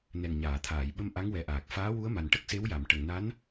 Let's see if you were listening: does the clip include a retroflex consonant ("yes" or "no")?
yes